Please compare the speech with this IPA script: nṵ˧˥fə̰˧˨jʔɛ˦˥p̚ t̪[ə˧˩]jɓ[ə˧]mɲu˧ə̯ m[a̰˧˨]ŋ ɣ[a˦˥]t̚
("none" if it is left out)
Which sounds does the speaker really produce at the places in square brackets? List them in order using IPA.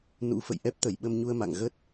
ə˧˩, ə˧, a̰˧˨, ə˦˥

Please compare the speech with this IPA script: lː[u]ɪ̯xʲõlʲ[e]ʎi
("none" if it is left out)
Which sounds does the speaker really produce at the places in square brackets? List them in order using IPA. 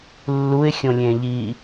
u, ẽ

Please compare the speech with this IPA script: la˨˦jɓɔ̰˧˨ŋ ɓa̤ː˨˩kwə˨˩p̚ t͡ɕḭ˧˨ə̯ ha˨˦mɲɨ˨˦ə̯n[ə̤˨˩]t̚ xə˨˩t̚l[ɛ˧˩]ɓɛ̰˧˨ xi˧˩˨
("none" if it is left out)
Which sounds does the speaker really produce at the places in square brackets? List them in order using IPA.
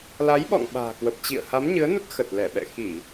ə˦˥, ɛ˧˩

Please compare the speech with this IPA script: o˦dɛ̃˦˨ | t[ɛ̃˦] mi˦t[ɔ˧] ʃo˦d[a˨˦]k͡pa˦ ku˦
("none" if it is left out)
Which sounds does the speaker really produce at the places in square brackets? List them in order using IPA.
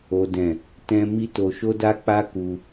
ɛ̃˦, o˧, a˦

